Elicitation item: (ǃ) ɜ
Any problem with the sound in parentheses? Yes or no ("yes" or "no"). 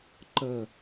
no